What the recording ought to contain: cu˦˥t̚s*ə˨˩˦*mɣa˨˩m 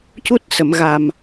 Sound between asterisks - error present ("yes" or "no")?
yes